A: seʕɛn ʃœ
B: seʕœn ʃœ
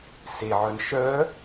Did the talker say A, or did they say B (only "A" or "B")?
B